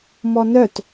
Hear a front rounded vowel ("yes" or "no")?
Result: yes